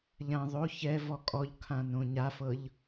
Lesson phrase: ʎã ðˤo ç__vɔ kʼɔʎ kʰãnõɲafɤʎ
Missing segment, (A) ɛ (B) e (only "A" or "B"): A